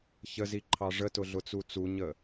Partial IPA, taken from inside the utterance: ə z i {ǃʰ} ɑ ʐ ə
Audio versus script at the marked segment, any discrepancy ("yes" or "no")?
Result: no